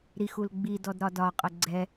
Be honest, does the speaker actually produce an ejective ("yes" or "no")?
yes